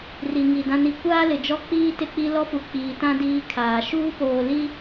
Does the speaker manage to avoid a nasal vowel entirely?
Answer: no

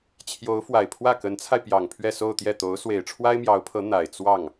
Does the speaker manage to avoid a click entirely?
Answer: yes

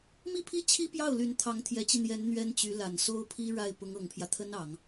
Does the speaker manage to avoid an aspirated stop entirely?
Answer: no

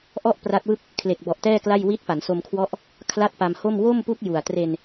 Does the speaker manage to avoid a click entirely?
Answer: yes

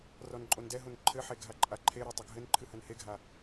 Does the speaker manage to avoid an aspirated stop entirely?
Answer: no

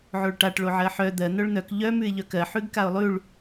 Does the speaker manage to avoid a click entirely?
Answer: yes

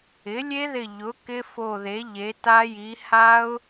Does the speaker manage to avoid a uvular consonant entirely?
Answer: yes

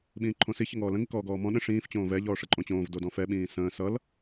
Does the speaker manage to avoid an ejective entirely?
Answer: no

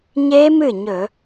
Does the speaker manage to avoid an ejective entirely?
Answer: yes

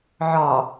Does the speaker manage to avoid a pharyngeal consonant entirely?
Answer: no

